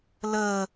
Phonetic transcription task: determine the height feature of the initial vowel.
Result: mid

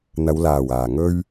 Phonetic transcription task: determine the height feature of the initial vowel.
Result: low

